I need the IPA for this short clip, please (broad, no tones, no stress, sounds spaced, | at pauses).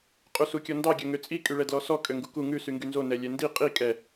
qʼ u s u kʲ ɔ n d ɑ ɡʲ œ ŋ ø t͡sʼ i kʼ y ɭ ɛ d l ɔ s ɔ kʼ ø ŋ ɡ u k u ŋ ʉ s y ŋ ɡ y n z o n ɛ lʲ ɛ n d i qʼ i kʼ ɛ